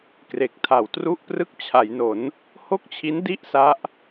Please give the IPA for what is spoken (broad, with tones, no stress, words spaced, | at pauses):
kre˨˩k̚tʰa˨˩wtru˥˩ʔprɯ˥˩k̚ t͡ɕʰa˩˦jno˩˦n | ho˥˩k̚t͡ɕʰi˦˥n di˥˩ʔ sa˦˥ʔ